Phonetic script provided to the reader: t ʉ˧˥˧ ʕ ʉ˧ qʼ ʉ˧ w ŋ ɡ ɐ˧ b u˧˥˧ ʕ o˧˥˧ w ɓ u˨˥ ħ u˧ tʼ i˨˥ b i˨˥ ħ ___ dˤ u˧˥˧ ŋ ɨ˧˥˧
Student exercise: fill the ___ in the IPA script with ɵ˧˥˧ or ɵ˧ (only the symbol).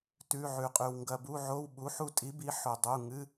ɵ˧